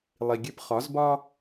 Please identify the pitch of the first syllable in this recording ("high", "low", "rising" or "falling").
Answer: low